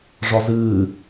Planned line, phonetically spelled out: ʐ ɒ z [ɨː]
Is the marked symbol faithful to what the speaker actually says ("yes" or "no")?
yes